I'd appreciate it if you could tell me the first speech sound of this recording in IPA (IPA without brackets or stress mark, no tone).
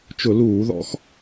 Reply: t͡ʃ